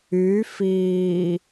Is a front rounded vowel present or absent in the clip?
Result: present